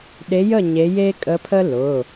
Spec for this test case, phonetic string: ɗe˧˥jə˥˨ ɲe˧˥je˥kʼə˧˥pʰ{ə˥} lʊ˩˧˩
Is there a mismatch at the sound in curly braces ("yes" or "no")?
no